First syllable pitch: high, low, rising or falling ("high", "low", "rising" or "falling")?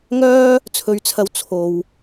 high